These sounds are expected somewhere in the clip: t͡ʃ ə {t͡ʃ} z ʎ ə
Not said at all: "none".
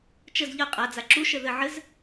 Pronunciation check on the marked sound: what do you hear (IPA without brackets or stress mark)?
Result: none